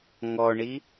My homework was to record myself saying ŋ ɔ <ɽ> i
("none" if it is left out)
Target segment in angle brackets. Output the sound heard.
ɳ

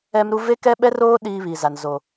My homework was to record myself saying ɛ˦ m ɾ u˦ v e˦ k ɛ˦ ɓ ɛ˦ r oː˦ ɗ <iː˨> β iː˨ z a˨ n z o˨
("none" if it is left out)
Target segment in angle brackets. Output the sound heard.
iː˦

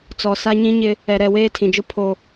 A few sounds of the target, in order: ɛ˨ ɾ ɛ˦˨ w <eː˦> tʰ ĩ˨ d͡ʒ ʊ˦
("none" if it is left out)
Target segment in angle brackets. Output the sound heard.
eː˦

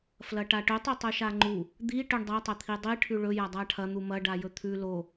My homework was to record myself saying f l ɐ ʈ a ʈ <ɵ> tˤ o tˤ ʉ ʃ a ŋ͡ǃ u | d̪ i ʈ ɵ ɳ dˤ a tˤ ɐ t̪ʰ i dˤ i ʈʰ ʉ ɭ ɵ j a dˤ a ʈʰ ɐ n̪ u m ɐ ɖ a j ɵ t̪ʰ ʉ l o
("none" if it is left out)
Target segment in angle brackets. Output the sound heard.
ɵ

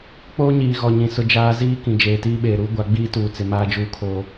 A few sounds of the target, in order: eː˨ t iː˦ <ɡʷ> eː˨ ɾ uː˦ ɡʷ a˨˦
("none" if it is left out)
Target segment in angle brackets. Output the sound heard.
ɓ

